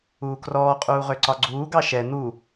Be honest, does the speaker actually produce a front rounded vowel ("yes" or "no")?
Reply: yes